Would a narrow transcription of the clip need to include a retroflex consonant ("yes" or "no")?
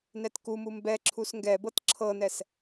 no